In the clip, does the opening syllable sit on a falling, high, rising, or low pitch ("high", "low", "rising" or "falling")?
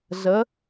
rising